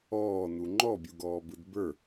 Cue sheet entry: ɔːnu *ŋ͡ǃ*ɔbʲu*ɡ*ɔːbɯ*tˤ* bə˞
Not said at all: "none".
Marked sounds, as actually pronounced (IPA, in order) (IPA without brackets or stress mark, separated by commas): ŋ͡ǃ, ɡ, d